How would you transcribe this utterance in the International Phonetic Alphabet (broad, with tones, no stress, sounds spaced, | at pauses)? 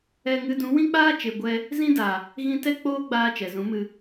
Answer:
ɛ˧ ŋ ɨ˧ d ũ˨˦ w ĩ˦ k͡p aː˦ t͡ʃ e˨ ɡʷ ɛ˧ | z ĩ˦ d a˨ | ɣ ĩ˧ t ɛ˦ k͡p oː˦ ɡ͡b aː˧ t͡ʃ ɛ˨ z ũ˨˦ m ɨ˧